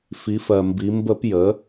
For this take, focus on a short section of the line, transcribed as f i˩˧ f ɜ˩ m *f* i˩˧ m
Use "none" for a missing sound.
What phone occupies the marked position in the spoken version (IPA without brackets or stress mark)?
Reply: b